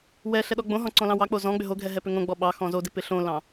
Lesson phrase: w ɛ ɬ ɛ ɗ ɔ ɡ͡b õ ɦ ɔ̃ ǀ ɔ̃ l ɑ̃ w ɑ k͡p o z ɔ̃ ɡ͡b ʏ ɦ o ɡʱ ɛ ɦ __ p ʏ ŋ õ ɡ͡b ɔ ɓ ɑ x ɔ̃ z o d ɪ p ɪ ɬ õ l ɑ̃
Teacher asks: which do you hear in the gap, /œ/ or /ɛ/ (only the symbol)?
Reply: ɛ